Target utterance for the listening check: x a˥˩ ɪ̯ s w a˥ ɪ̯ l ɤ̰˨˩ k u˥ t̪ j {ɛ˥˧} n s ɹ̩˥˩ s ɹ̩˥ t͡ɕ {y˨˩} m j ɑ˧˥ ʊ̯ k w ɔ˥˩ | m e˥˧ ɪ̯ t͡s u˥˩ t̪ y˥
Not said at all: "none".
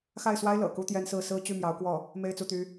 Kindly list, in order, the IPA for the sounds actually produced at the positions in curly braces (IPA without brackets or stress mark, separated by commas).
ɛ˥, y˥˩